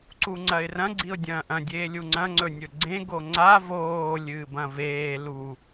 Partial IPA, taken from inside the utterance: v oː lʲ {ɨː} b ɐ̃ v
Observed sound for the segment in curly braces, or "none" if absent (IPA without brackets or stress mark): ɨː